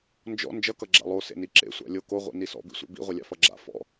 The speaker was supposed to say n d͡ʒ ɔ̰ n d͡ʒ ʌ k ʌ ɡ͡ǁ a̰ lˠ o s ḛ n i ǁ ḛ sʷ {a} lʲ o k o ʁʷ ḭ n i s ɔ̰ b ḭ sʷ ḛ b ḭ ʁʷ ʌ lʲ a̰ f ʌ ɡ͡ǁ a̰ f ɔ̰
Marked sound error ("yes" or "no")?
yes